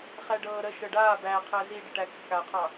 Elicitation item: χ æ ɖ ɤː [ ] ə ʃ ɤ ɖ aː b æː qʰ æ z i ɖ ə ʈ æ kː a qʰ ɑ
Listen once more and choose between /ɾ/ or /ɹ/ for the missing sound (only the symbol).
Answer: ɾ